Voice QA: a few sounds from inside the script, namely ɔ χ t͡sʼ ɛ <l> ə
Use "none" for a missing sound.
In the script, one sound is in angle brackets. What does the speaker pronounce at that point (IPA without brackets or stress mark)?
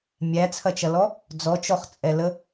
l